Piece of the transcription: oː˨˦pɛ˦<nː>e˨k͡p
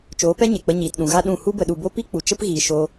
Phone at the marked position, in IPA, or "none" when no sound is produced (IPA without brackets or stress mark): ɲ